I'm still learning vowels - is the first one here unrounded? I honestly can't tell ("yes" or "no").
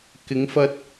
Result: yes